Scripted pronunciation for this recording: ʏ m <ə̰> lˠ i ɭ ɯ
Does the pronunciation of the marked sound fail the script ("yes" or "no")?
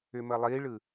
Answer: yes